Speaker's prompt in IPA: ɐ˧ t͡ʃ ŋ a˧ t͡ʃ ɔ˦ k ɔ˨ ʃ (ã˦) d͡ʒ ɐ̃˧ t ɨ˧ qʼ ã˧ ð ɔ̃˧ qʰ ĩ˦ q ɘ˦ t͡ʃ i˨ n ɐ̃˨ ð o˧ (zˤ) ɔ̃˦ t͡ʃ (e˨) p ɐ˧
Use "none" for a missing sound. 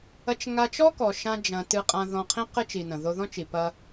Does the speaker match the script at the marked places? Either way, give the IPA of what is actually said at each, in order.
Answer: ã˦, ð, i˨

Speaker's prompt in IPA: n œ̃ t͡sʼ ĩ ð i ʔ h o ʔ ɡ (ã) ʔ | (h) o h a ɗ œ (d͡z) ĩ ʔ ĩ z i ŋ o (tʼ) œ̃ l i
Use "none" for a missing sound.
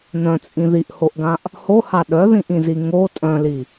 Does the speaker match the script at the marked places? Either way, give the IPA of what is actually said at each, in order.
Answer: ã, h, ð, tʼ

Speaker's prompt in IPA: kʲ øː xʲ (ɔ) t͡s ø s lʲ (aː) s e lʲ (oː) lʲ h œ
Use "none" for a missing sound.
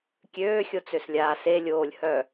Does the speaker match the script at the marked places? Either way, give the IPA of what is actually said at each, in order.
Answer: o, aː, oː

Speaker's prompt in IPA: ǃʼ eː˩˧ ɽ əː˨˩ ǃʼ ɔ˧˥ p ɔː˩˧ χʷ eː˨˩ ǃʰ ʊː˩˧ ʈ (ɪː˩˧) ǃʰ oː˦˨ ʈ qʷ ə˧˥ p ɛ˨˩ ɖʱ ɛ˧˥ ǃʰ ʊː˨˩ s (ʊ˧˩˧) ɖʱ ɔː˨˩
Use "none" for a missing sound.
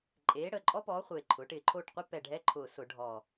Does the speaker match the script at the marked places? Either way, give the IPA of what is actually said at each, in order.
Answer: ɪː˨˩, ʊ˧˩˧

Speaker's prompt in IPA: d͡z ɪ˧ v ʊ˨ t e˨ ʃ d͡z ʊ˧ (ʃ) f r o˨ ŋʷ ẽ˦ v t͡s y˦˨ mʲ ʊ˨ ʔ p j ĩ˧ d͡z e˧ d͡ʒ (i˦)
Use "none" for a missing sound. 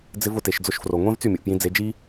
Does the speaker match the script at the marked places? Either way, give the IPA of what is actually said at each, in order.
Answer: ʃ, i˦

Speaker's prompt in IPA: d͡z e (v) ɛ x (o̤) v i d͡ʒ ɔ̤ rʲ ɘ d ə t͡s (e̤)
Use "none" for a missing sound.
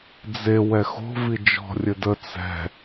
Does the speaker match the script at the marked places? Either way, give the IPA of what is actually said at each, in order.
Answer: w, o̤, ɛ̤

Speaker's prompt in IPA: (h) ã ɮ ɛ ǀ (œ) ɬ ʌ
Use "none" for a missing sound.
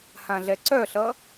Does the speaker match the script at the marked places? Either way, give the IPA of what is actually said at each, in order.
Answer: h, œ

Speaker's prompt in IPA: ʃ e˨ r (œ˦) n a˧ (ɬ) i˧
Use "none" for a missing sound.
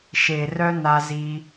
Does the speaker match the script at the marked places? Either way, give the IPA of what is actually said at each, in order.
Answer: œ˦, z

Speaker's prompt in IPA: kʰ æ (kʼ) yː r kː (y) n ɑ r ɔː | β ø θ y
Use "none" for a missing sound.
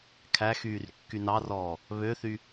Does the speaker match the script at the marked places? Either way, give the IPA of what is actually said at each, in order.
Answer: x, y

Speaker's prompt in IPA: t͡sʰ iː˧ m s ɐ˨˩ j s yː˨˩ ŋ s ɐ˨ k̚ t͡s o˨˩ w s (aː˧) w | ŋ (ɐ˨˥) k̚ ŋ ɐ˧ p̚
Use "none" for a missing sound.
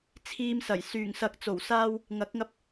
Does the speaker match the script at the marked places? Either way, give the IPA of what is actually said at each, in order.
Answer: aː˧, ɐ˨˥

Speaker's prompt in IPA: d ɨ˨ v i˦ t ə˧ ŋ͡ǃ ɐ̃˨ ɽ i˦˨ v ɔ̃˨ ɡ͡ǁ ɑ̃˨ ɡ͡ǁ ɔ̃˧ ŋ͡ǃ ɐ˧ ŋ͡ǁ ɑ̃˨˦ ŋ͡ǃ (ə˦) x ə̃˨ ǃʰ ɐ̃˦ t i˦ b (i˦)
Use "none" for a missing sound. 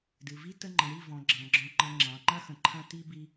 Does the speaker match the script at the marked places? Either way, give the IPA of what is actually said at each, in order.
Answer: ɐ˦, i˦

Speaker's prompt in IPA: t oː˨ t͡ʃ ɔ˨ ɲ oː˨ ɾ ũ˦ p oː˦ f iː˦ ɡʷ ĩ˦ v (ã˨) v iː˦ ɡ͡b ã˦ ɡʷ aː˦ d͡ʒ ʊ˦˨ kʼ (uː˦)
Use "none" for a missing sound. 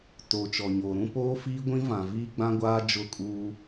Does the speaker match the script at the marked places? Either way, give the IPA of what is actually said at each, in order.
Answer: ã˨, uː˦

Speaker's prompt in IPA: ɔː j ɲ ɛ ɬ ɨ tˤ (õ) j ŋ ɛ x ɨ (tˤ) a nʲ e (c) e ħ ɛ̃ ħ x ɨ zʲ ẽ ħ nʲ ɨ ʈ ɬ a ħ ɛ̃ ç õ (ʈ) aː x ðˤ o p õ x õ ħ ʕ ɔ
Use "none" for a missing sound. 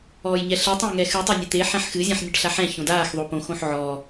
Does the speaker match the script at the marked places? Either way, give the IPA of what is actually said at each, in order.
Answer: õ, tˤ, t̪, d

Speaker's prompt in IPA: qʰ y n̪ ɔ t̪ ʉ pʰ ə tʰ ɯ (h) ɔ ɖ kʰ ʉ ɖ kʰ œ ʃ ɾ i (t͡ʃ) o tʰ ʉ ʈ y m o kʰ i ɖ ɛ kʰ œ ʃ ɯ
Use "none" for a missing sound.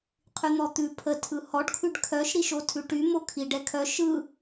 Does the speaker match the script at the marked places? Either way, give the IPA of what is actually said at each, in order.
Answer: h, ʃ

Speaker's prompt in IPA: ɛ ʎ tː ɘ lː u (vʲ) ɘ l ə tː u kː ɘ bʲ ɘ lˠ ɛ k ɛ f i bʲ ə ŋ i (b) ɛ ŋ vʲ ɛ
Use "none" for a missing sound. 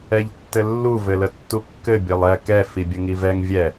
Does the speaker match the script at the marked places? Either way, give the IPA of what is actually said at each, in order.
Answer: v, v

